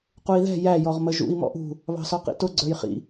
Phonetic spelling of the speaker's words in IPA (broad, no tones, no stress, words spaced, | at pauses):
qui̯ðɛ̤ jæ jɔʁməʒṵi̯ mɔ̰ʔṳ | βɑ̤sɔqḭtʊ ɡ͡ǀə˞jχḭ